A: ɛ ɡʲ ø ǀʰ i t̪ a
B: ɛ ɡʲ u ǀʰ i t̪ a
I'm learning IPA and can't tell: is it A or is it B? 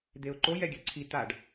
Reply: A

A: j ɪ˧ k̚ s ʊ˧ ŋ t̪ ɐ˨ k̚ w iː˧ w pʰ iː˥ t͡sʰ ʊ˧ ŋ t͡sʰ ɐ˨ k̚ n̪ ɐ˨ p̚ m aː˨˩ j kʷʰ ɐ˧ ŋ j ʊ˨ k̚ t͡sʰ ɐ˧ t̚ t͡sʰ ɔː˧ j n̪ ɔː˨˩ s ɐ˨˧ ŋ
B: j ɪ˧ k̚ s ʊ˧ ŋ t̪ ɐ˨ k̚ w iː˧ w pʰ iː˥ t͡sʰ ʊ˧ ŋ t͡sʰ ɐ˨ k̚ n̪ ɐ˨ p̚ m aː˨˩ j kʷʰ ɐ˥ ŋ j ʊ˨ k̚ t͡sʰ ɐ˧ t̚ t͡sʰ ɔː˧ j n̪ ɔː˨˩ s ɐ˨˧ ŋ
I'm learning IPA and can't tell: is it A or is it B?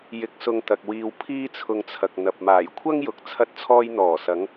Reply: B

